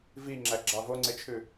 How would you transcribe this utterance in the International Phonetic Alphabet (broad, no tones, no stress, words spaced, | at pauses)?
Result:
viŋ͡ǁæɡ͡ǁɑ voŋ͡ǀet͡ʃʰʉ